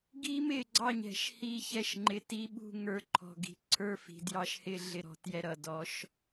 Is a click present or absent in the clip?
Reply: present